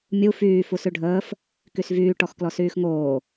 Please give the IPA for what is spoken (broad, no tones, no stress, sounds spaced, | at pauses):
mʲ u f yː f u s ʉ ɖʱ əː f | k y s v yː ʈ ɔ x k l ɔ s yː x ŋ oː